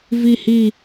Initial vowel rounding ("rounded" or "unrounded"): unrounded